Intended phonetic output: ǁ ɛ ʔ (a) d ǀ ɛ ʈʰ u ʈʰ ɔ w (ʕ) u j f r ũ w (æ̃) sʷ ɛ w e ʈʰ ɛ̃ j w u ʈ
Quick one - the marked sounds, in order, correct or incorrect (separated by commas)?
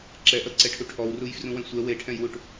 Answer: incorrect, incorrect, incorrect